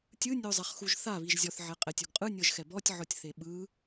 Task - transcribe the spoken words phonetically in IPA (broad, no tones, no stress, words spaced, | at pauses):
tʲɯ nʲozˤɛχxuʒθa βiʒzʲɔθ ʕɛqʼɛtʲ oɡqʼɯ nʲɤʒxɛbɔtʲ ʕɔtʲθeɓɯ